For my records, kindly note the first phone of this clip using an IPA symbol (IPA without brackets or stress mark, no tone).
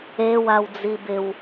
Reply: e